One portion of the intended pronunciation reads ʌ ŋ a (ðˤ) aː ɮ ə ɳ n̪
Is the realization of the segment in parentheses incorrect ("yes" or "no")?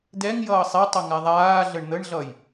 no